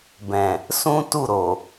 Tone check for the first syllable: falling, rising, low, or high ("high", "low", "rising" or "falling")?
low